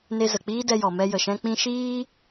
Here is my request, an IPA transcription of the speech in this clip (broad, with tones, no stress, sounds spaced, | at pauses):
n e˧ z ə˨ k͡p iː˦ d ɛ˧ j ɔ˨ m ɛ˧ j ə˨ ʃ ɛ̃˧ k͡p ĩ˦ ʃ iː˦